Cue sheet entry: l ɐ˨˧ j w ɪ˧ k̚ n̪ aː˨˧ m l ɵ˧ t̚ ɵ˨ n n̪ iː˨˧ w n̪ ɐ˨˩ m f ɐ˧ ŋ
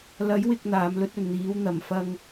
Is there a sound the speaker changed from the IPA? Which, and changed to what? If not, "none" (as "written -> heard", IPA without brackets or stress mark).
ɪ˧ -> ɪ˨